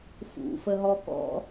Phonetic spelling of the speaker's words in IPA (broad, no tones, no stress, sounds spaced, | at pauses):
f ṵ f ə ɦ ɔ k ɔ̰